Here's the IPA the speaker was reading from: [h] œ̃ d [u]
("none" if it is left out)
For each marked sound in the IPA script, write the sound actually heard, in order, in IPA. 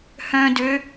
h, ø

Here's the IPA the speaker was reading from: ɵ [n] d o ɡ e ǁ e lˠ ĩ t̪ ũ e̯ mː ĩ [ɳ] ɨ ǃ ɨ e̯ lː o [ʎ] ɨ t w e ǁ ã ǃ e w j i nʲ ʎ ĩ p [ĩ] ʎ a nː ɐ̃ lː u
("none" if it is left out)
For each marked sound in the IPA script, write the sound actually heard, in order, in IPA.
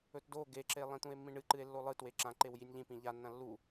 t, ɳ, lˠ, ĩ

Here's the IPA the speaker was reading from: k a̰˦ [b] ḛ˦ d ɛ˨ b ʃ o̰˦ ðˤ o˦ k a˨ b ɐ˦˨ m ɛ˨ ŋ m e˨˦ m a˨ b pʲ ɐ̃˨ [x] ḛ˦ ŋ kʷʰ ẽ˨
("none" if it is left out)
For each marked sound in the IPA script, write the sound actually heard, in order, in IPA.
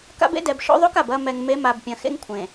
b, x

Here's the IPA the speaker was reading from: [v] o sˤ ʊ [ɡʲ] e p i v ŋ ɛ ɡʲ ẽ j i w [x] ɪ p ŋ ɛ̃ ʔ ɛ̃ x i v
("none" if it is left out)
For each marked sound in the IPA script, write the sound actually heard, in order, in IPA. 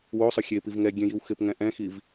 w, xʲ, x

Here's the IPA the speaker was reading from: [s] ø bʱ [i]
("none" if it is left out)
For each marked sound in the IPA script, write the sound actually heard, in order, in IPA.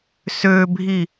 s, i

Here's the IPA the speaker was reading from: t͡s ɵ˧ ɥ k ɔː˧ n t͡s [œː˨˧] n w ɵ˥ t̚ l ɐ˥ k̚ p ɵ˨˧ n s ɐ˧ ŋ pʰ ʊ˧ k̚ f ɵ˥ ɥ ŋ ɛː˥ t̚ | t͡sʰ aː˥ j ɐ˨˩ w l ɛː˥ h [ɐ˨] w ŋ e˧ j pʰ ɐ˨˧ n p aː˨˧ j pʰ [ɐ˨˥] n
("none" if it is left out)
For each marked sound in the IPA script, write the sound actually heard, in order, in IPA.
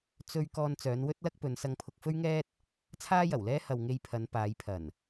œː˨˧, ɐ˨, ɐ˨˩

